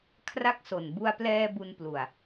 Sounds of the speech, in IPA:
kʰ r a˥˩ k̚ s o˨˩ n b u˧ a̯ p l ɛː˧ b u˧ n p l u˨˩ a̯

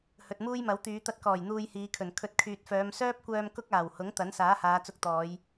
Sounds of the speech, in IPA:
h ɵ˨ t̚ m uː˥ j m ɐ˨˥ w t̪ yː˨˧ t̪ ɐ˧ t̚ k ɔː˨˩ j n̪ uː˧ j h iː˨˧ kʰ ɵ˨˩ n kʰ ɵ˨˥ t̚ kʰ yː˨ t̚ f œː˨˧ m s œː˥ p̚ kʷ œː˧ m k ʊ˥ k̚ aː˨˩ w h ʊ˨˥ ŋ t̪ ɐ˨˥ n s aː˨˥ h aː˨˧ t͡s ʊ˧ k̚ t̪ ɔː˨˧ j

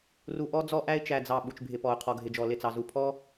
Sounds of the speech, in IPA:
r u˨ ʔ ɔ˦ d͡z ɔ˦ ʔ æ˦ ɪ̯ t͡ʃ æ˨ d͡z ɑ˨ ɓ u˨ t͡ʃ bʱ ɪ˨ p ɔ˨ ʊ̯ qʰ ɔ˨ ɡʱ ɪ˨ d͡ʒ ɔ˨ l ɪ˦˨ t͡s ɑ˨ z u˨ pʰ ɔ˦

